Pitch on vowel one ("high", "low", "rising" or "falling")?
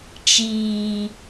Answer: low